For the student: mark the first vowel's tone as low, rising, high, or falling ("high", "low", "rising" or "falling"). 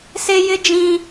high